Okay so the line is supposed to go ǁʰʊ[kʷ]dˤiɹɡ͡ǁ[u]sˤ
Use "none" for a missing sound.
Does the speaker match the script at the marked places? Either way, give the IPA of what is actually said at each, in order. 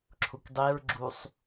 kʷ, u

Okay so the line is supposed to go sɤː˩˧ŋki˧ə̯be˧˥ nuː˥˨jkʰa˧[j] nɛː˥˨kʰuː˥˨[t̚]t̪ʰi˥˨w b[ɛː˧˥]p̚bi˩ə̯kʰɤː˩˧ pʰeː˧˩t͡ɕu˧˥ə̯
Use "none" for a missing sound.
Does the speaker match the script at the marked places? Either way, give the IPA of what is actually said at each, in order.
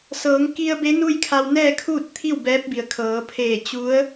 w, t̚, ɛː˧˥

